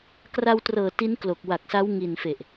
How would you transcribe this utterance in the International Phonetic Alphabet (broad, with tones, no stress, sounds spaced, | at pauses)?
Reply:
k r a˧ w t r ɤː˨˩ t i˦˥ n k l o˨˩ k̚ w a˨˩ k̚ s a˦˥ w ŋ i˨˩ n f e˨˩ ʔ